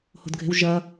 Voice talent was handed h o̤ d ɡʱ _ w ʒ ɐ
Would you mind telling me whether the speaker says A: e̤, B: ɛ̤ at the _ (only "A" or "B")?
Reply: A